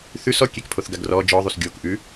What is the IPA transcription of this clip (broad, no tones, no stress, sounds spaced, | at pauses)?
θ ʉ s ɔ kʲ e k pʰ o θ ɡ a ɡ r ɔ d͡ʒ ɔ ðˤ u s ɡʲ o k ʔ ʉ